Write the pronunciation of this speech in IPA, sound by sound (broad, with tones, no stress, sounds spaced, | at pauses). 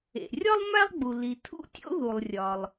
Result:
ḛ˩ rʲ ɒ˥ lˠ m æ˥ lˠ ɡ͡b u˩ l i˩ tʰ ṵ˥ tʲ o̰˥ ð u˩ lˠ rʲ ɒ˩ lˠ